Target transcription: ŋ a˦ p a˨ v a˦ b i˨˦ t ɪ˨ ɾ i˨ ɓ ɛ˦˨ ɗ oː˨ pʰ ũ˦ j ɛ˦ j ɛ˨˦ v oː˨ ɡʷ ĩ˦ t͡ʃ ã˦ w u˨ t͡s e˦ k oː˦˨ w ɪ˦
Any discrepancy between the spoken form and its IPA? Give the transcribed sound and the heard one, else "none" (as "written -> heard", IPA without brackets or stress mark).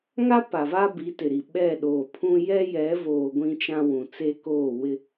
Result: u˨ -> ũ˨